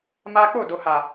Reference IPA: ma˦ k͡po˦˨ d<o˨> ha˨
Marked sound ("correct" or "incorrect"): correct